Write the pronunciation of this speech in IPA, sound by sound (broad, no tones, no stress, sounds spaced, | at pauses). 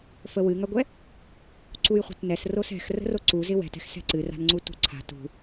f ə w ɨ ŋ a ɡʷ ɛ | ǀ u j χʷ ə̤ t n ɛ s r o s ɛ̤ x r ə̤ r o ǀ u z ɪ w ɛ̤ t ɛ̤ x s ɛ̤ ǀ ɨ r a̤ n ŋ͡ǀ u t ṳ ǀʰ a̤ t ṳ